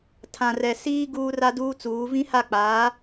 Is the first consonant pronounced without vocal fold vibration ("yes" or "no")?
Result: yes